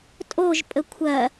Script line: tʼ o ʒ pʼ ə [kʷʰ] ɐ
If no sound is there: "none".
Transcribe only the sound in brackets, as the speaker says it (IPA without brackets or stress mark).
kʷʰ